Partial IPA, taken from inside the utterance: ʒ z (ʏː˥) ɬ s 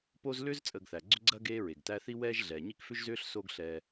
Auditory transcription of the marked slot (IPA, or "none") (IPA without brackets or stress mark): ʏː˥